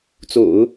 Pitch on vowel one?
low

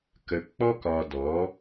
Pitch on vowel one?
low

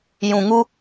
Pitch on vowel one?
low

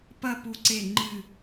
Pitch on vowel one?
falling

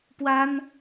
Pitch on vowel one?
high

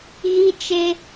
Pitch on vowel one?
high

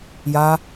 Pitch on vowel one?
high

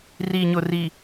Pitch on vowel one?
low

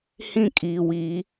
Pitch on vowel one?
falling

